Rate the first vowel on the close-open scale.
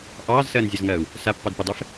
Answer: open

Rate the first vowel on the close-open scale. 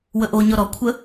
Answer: mid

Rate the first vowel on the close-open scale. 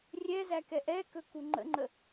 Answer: mid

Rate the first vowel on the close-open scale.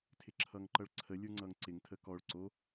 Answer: close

